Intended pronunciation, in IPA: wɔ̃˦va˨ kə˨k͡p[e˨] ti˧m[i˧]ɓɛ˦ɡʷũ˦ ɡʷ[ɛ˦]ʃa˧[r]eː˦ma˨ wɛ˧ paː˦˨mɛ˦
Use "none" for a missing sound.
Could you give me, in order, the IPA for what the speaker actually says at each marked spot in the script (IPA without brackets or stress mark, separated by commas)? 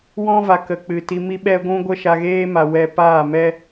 ɨ˨, i˦, ə˦, ɣ